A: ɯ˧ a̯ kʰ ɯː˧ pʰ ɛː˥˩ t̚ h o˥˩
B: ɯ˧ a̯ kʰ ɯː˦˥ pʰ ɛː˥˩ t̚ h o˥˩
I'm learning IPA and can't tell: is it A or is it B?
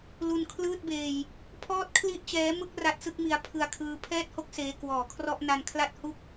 B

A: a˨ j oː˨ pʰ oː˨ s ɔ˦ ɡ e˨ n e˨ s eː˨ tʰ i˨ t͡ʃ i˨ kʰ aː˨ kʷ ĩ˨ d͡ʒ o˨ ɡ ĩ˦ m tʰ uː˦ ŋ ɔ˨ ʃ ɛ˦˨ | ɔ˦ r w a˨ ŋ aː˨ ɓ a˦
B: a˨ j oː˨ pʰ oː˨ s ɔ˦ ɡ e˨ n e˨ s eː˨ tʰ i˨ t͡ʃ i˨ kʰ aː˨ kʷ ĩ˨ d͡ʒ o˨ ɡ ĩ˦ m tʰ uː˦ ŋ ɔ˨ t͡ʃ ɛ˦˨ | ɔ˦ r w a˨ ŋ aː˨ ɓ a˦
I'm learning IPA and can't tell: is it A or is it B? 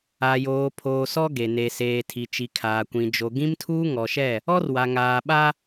A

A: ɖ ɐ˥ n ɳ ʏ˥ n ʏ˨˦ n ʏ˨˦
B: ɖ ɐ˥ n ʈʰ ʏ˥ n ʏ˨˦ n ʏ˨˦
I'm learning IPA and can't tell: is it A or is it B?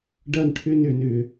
B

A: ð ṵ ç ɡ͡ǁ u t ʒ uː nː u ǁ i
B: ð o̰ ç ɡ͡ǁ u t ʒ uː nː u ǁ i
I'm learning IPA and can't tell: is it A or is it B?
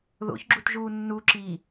B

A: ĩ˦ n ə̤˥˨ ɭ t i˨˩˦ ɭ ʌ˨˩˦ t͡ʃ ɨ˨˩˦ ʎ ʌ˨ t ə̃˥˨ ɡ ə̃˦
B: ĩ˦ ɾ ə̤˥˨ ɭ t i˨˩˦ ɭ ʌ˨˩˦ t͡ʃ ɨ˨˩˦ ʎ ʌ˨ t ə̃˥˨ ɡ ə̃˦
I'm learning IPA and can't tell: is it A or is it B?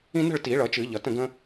A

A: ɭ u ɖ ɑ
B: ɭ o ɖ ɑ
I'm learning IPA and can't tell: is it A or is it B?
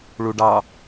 A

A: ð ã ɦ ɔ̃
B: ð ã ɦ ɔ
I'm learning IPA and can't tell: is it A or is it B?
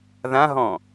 A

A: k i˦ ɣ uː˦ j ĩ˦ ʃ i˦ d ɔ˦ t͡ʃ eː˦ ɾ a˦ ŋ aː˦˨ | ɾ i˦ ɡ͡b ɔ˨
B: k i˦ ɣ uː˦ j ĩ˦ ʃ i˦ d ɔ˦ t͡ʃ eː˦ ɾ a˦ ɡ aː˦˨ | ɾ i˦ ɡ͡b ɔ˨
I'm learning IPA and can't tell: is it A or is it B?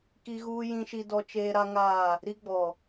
A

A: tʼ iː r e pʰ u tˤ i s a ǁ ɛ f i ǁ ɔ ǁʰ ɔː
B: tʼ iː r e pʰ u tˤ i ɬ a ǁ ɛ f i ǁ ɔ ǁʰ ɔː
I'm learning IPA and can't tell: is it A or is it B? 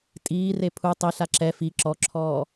B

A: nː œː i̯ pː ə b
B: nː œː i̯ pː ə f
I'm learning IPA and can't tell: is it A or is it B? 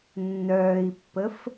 B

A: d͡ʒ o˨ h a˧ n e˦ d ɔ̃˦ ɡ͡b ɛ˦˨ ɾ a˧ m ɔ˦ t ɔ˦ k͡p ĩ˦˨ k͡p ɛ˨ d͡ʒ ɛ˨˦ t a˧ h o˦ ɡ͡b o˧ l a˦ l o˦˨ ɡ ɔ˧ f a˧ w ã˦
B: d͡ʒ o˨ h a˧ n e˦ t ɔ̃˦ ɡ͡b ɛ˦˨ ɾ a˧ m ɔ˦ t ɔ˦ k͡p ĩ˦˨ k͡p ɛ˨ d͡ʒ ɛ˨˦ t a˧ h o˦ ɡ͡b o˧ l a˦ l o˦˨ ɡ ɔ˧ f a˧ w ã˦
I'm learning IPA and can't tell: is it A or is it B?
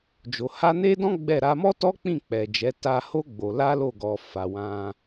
A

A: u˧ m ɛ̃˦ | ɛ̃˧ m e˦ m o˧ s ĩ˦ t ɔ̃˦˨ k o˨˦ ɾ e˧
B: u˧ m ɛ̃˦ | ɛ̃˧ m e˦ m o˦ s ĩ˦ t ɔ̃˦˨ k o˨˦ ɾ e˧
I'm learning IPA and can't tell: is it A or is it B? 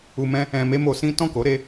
A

